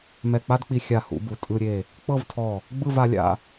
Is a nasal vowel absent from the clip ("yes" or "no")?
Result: yes